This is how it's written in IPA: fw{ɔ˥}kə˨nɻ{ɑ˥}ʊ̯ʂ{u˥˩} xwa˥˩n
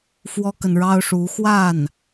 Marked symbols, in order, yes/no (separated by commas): yes, yes, no